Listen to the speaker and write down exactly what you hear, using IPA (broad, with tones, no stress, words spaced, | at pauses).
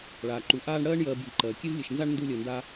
ɭaː˩ǃu˩ ʔaː˦ɳɽɜː˥ɳ jɜː˨bji˩ ǃɜː˩kʲe˥vlʲe˨ʃnza˥ɳ ndu˦lʲɜ˨nda˥